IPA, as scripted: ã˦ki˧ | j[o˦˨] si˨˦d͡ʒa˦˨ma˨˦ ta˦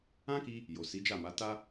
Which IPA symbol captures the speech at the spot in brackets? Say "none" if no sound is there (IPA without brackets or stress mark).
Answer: o˨